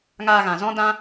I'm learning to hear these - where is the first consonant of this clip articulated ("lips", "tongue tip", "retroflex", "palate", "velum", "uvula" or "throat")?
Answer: velum